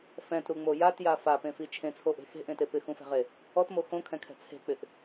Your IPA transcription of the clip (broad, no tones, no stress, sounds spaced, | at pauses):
f ɛ̃ t ɾ u ŋ͡m o j a t j a f a p ẽ f i t͡ʃʰ ẽ t͡sʰ o ʔ e̤ x e̤ ʔ ẽ t e p ɪ x ũ f ɛ̤ ʁ e | ɔ t m o x õ kʰ ɛ̃ kʰ ɛ̤ t͡sʰ e̤ k͡p ɪ ʔ